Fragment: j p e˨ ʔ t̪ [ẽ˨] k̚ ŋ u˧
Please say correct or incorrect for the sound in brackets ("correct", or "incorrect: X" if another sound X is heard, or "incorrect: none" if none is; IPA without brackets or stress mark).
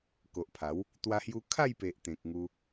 correct